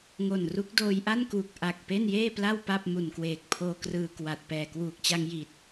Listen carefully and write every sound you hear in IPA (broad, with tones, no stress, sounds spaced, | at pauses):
ŋ o˨˩ n r u˦˥ k̚ d oː˧ j ʔ a˥˩ n k uː˨˩ k̚ ʔ a˨˩ k̚ p e˥˩ n j eː˥˩ p l a˥˩ w p a˥˩ p̚ m u˨˩ n k w eː˨˩ k̚ pʰ oː˧ k r ɯː˧ k w a˨˩ t̚ p ɛː˨˩ k w uː˨˩ k̚ t͡ɕ a˧ ŋ j i˨˩ t̚